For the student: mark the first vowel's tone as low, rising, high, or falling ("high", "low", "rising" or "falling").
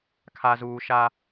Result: low